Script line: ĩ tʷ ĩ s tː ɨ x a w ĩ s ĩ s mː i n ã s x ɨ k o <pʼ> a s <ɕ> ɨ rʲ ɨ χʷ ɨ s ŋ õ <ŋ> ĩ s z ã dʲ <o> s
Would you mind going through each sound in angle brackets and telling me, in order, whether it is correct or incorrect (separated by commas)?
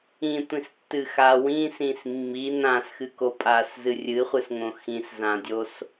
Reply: correct, incorrect, incorrect, correct